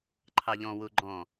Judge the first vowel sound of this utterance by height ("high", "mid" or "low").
low